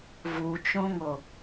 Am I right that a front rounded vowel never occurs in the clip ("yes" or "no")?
yes